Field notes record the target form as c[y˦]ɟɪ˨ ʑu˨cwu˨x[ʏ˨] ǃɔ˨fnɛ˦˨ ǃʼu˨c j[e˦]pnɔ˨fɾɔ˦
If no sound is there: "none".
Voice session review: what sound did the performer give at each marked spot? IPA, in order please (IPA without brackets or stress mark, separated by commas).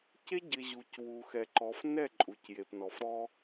e˦, ɛ˨, e˨